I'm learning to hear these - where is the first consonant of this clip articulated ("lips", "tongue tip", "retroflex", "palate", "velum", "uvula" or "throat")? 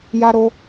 palate